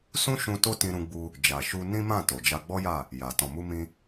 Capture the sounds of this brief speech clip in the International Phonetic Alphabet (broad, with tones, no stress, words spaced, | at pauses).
sũ˦ʃũ˧ to˦ tĩ˧ɾũ˧ɡ͡bu˧ | d͡ʒa˨ʃu˧ nĩ˦mã˦˨ to˨d͡ʒa˧ɡ͡bɔ˦ja˦˨ | ja˨ tɔ̃˨mu˧mĩ˧